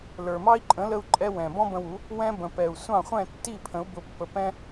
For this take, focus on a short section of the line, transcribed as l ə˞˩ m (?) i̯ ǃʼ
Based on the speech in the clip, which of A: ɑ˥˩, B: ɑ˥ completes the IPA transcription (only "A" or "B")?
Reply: B